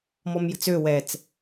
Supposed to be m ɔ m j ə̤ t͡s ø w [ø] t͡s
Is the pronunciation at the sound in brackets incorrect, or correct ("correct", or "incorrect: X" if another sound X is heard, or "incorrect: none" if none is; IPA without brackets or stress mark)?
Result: incorrect: ɛ